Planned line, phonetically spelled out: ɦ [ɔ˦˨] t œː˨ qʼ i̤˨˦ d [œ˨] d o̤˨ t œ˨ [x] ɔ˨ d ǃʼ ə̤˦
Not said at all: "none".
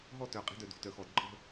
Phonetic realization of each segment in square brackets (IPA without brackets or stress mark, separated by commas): ɔ˦˨, œ˨, x